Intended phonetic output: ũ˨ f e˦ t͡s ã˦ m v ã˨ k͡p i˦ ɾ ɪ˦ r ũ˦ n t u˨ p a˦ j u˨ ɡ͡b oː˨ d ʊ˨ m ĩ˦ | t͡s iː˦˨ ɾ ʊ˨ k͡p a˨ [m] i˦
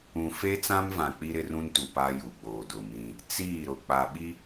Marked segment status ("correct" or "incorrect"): incorrect